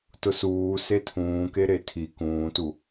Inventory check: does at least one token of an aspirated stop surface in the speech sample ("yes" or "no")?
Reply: yes